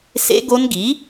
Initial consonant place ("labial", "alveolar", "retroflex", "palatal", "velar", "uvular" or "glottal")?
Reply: alveolar